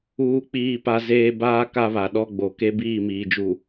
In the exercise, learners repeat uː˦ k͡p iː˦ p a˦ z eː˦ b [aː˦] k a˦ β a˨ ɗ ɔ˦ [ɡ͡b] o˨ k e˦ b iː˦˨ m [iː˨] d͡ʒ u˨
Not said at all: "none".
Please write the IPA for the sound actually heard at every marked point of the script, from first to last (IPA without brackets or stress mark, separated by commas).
aː˦, ɡ͡b, iː˨